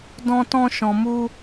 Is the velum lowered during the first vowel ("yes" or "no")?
yes